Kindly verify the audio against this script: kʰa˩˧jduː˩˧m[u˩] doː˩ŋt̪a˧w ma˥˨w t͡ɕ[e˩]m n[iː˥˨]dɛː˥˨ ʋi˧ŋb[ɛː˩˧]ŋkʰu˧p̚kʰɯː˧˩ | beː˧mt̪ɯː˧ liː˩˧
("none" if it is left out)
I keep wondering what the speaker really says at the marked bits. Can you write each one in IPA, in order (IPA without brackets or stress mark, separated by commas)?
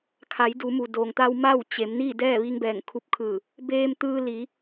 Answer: u˩, e˩˧, iː˥˨, ɛː˧˩